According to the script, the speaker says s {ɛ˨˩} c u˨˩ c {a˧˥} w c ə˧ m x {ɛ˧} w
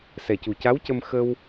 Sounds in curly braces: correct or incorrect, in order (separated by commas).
correct, correct, incorrect